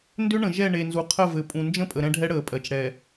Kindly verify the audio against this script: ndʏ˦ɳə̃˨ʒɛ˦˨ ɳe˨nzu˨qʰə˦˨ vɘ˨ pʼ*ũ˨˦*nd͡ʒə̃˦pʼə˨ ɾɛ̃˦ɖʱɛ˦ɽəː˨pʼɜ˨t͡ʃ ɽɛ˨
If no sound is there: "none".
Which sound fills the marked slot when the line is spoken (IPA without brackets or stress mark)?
ũ˨